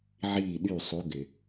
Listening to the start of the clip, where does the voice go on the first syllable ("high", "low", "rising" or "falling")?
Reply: falling